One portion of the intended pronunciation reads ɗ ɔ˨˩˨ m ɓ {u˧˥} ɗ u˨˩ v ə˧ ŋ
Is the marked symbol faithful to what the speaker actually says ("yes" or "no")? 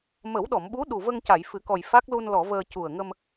yes